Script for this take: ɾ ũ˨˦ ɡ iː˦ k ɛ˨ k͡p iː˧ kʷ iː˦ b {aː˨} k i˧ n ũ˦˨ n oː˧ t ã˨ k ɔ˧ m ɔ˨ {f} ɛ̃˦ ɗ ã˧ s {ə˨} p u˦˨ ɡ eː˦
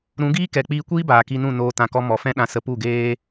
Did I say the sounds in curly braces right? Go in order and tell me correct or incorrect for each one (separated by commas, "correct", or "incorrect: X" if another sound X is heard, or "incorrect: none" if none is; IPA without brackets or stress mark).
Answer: correct, correct, incorrect: ə˧